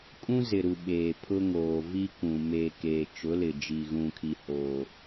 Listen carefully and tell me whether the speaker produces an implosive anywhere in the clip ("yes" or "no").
yes